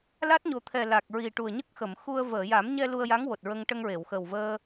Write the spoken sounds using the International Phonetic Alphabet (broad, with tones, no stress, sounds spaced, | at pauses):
l a˦˥ t̚ ɲ o˨˩ t̪ʰ ɛ˨˩ l a˨˩ k̚ ɹ i˨˩ ʈ u˨˩ ə̯ ɲ ə˦˥ k̚ x ə˨˩˨ m x u˧ ə̯ v əː˨˩˨ j a˨˩˦ m ɲ ɛ˧ l u˧ ə̯ j a˧˥ ŋ w o˨˩ t̚ ɹ ə˧ ŋ ʈ ə˧ ŋ ɹ e˨˩˨ w x ə˨˩ w v əː˧